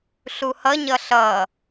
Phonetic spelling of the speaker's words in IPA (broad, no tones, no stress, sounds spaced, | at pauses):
ɬ u h ʌ ɲ ʌ ɬ ʌ